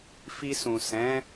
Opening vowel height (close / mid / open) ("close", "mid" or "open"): close